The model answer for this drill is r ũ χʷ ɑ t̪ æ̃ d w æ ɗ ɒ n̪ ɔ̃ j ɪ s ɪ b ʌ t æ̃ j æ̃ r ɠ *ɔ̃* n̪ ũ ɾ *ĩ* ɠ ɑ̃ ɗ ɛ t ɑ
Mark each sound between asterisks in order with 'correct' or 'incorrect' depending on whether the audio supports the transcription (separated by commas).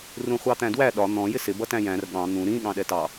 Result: incorrect, correct